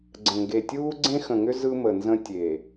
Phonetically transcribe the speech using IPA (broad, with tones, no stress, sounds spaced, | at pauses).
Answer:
ɡ͡ǀ ə̃˨ ŋ ɡ e˨ tʲ uː˦ ɡ͡ǀ ẽ˦ x ə̃˨ ŋ ʏ˦ z ɯ˦ m ə˨ n z ə̃˦ tʲ e˨